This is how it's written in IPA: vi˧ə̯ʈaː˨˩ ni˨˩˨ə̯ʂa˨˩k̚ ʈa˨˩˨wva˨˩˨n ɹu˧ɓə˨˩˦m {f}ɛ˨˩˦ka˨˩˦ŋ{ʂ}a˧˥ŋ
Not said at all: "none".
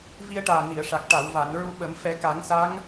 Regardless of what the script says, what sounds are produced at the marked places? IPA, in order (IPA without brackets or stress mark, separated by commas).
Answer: f, s